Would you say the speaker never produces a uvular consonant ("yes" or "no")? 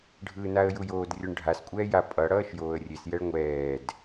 yes